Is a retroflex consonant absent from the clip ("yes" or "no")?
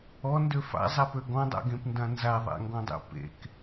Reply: yes